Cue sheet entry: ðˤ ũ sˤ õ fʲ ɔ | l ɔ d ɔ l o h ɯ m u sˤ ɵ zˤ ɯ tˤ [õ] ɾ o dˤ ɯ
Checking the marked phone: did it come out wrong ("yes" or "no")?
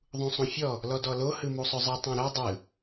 no